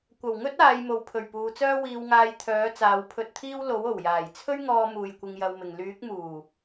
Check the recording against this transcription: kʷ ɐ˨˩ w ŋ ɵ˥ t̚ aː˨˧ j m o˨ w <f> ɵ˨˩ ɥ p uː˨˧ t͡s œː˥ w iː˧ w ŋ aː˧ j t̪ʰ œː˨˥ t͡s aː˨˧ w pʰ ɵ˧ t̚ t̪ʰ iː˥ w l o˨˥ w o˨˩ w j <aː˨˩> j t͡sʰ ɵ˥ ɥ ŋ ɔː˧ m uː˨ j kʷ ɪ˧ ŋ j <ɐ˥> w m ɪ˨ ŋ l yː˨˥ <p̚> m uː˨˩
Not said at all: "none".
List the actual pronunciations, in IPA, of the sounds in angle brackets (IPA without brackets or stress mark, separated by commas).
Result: pʰ, aː˨˩, ɐ˧, k̚